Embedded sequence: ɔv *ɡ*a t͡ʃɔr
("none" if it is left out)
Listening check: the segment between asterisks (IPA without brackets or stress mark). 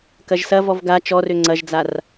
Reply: ɡ